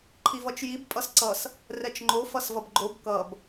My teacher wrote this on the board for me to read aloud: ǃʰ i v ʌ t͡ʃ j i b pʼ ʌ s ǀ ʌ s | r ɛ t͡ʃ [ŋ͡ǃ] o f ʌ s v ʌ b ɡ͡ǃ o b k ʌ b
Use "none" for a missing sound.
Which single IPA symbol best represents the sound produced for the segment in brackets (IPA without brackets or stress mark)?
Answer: ŋ͡ǃ